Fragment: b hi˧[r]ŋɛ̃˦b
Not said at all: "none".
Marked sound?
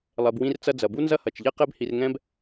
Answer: r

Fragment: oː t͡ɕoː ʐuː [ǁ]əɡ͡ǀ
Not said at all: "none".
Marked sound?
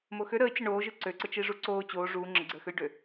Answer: ŋ͡ǁ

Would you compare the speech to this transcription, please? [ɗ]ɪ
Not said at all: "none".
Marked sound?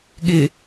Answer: ɠ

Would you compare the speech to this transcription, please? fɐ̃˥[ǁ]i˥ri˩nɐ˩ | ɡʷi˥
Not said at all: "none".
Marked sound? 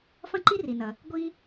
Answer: ǃ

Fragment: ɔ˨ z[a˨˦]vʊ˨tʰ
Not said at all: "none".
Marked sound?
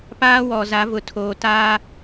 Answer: a˨˦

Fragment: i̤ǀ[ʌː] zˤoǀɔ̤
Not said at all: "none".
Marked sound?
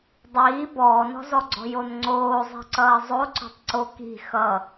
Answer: ʌː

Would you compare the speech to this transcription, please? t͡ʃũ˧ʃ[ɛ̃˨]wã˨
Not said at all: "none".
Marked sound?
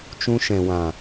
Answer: ɛ̃˨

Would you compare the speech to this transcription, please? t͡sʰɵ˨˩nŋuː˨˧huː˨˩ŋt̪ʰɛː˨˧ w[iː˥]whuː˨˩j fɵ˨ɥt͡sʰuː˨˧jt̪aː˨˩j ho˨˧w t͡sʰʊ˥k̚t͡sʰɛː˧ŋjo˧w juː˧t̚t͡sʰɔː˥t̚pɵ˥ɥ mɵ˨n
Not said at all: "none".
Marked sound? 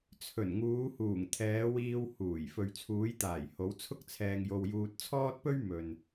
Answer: iː˧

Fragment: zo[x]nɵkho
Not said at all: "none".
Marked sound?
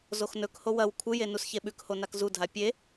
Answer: x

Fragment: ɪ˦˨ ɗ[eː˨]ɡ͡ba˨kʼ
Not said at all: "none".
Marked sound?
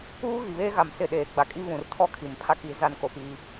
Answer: eː˨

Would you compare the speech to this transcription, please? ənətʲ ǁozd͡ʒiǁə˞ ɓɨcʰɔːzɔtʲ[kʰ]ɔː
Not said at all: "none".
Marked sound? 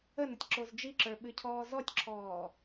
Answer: ǁʰ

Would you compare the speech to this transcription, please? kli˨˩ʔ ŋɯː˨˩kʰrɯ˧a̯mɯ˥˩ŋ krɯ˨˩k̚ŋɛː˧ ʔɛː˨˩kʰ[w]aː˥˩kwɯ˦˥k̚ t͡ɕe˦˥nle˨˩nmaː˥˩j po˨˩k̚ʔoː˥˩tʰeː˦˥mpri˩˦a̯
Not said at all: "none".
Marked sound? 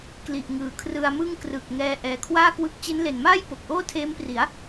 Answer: w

